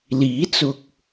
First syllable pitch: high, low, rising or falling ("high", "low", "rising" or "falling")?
rising